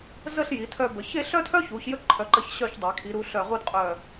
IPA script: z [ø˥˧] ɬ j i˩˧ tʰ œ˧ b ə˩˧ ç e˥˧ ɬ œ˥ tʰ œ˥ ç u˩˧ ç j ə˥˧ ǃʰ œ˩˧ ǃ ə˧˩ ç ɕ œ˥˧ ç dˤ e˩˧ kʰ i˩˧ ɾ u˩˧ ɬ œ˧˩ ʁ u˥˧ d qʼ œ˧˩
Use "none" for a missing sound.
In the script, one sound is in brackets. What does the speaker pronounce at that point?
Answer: ə˥˧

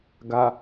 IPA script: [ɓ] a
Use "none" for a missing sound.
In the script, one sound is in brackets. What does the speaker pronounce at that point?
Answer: ɡ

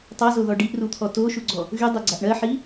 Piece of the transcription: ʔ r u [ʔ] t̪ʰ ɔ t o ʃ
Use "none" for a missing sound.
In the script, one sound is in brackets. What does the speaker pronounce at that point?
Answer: none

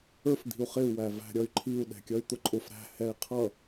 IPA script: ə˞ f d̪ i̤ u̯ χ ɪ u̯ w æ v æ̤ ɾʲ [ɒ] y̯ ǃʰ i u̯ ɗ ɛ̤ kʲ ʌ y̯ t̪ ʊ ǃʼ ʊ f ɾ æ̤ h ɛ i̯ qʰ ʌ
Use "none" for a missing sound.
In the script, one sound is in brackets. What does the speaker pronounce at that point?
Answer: ʌ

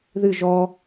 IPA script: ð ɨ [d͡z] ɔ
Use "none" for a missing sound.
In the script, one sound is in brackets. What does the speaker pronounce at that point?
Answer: ʒ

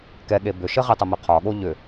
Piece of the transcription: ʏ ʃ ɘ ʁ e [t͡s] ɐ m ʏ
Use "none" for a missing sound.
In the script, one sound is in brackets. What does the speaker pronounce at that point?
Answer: tˤ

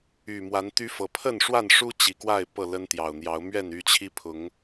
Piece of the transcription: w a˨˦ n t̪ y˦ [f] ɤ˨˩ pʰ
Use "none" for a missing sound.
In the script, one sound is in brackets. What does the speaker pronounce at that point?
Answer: f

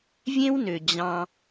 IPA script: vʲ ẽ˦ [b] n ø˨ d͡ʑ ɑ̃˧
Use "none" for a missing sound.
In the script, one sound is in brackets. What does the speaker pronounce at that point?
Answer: w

